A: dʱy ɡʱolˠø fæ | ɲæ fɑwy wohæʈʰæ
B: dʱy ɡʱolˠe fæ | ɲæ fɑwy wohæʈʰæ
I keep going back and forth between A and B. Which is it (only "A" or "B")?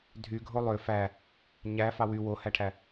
A